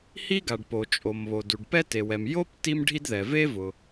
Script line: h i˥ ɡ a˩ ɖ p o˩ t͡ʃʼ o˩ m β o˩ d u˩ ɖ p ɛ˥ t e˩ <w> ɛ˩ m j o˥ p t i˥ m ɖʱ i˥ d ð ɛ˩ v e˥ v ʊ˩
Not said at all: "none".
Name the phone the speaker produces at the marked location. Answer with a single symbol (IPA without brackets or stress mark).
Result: w